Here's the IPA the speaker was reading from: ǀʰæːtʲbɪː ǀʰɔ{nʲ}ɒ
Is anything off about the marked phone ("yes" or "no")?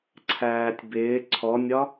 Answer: no